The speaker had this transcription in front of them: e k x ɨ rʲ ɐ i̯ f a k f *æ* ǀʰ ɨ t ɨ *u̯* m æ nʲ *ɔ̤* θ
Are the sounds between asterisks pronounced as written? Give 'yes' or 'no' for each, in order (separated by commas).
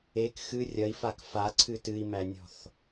no, no, yes